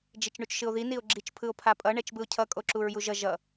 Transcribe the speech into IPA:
d͡ʒ i t͡ʃ ɳ u t͡ʃ ʃ ɯ o̯ ð i n i o̯ ɡ͡ǁ i t͡ʃ pʰ ɯ o̯ pʰ a pʼ ʌ ɳ ɛ t͡ʃ b ɯ o̯ cʰ ʌ kʼ o ǁ u ɹ j u ʒ ʌ ʒ ʌ

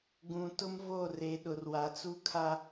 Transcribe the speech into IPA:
ɡ ũ˨ t ʊ˦ m v o˦˨ r e˨ ɗ ʊ˨ r w a˨ t͡s u˦ kʰ a˦

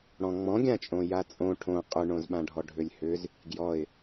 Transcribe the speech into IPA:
ɽ ɔ̃ ŋ͡m ɔ̃ ɡʲ ã t͡ʃʼ õ j a t͡sʼ õ ʈʰ õ qʼ ʏ ɳ õ z ɓ ã ɖʱ ɔ ɖʱ ʏ lʲ h ʏ z | ɡ j ɔ ɪ̯

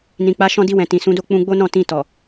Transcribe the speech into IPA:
n ĩ˨ k͡p a˨˦ ʃ ɔ̃˧ d i˧ w ɛ̃˨ t ĩ˨ s ũ˨˦ d o˦˨ k͡p ũ˧ ɡ͡b o˦ n ɔ̃˦˨ t ĩ˧ t ɔ˨

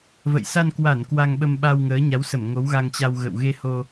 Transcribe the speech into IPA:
v ə̰˧˨ j s a˧ n k w a˧˩ n k w a˧ ŋ ɓ ə˧ m ɓ a˧ w ŋ əː˨˦ ɲ a˨˦ w s ə˧˩ m ŋ o˨˦ w ɣ a˧ ŋ t͡ɕ a˧ w ɣ ə̰˧˨ w ɣ e˧ h o˧

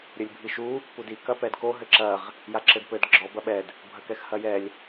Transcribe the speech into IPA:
ɾʲ ɘ lʲ bʱ i ʃ u | p u d i k ɐ p ɛ d k o ɦ ɘ ǁ ɐ ʁ | j a ǁ ɘ d p ɘ d ɡ͡ǁ ɔ b ɐ ɓ ɛ d | bʱ ɐ k ɛ x h ɐ j ɛ lʲ

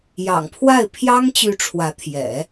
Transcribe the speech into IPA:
j ɑ̰˨˩ ŋ pʰ w a˥˩ ɪ̯ pʰ j ɑ˥ ŋ t͡ɕ y˧˥ ʈ͡ʂʰ w ä˧˥ t̪ʰ j ɛ̰˨˩˦

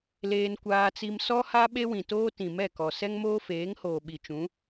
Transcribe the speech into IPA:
l eː˦ n kʷ aː˦ t͡s i˦ m s ɔ˦ h a˦ ɓ e˦ w ĩ˨ t oː˦ t ĩ˨ m ɛ˦˨ k ɔ˨ s ɛ˦ ŋ m oː˦ f eː˨˦ ŋ h oː˨ ɓ i˨ t͡ʃ ũ˨˦

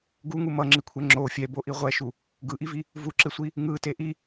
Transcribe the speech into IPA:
ɡ u ŋ u m ʌ ŋ͡ǁ i kʷʰ ɛ ŋ͡ǁ o fʲ ɛ b o ʔ i ʁʷ ɛ ʃ u | ɡ ɯ ʔ i v i | v u ǁ e sʷ i | ŋ ɯ t e ʔ i

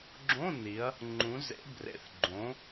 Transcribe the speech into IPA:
ɡ͡ǁ õ˧˥˧ n i˩˧ ɐ̯ | ŋ͡ǃ ũ˩˧ z ḛ˩˧ b r ḛ˩˧ θ ɡ͡ǃ õ˩˧

